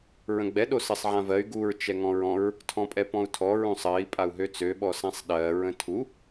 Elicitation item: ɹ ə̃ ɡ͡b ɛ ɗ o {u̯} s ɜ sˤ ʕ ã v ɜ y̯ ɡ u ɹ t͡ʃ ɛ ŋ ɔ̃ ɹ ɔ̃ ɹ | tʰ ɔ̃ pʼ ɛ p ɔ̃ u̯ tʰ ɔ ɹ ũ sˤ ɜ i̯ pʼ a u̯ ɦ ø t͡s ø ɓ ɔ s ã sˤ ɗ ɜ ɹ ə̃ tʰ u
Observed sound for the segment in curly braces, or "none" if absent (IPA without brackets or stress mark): none